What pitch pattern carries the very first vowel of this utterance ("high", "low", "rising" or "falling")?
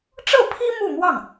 falling